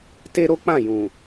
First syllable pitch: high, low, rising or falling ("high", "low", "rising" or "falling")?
high